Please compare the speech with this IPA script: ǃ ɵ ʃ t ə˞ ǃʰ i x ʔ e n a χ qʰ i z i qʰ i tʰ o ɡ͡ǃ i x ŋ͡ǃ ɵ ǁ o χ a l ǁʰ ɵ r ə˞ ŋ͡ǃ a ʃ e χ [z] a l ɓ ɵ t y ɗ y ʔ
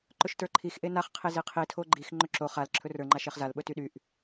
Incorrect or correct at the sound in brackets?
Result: correct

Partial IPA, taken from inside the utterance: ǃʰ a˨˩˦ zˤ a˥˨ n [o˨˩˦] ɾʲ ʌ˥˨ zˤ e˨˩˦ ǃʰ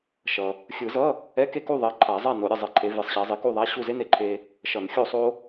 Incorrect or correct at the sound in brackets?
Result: correct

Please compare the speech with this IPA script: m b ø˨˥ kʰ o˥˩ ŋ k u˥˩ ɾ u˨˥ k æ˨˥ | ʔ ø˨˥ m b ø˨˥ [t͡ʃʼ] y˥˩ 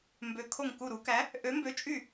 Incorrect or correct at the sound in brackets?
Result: correct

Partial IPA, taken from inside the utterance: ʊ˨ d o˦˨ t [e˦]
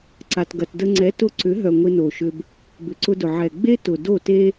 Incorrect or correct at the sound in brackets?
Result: correct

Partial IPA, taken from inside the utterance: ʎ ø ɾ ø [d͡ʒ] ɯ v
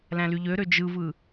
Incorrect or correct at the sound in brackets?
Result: correct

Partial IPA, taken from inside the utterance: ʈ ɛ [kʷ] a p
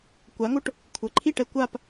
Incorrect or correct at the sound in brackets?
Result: correct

